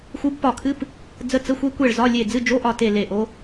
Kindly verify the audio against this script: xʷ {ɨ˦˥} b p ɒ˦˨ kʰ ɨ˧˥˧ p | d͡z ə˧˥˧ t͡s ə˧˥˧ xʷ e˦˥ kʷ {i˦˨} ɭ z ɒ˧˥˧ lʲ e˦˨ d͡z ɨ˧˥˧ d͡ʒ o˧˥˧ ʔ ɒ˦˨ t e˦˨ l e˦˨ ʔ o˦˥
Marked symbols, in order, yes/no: yes, no

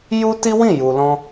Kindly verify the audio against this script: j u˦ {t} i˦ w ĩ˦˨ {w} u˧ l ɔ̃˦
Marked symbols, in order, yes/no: yes, no

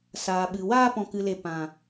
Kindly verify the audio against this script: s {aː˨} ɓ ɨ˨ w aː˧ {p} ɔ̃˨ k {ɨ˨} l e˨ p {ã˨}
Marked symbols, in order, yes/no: yes, yes, yes, yes

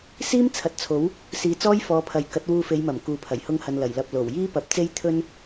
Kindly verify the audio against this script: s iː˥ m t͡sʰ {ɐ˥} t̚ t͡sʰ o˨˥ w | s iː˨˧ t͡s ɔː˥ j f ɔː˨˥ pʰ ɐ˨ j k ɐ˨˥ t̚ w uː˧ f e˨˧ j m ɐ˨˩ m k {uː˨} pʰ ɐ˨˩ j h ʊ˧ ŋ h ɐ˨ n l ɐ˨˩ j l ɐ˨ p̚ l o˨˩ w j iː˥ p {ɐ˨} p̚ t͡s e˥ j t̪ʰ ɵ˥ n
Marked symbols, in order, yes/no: no, yes, no

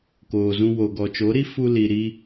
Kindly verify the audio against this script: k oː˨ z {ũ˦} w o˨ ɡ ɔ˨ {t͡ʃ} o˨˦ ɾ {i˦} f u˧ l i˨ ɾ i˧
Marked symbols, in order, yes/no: no, yes, yes

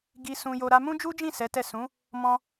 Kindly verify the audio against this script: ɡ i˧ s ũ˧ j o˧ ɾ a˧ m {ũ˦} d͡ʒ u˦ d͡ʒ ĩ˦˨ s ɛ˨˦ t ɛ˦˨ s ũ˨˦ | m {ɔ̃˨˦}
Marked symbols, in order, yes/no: yes, no

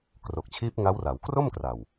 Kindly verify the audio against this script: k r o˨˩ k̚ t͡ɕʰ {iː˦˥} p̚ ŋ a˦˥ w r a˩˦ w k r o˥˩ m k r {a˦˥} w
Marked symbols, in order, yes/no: yes, no

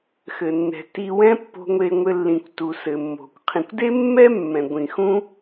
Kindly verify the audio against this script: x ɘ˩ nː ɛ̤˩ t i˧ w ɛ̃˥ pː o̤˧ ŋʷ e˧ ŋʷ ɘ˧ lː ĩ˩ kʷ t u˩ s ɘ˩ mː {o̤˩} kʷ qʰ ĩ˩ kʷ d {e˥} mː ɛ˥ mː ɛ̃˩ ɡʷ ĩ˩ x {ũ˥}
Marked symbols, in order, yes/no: yes, yes, yes

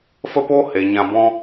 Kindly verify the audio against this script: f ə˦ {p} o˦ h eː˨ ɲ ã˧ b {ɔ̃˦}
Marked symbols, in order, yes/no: yes, yes

